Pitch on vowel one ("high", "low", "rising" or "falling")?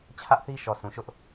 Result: high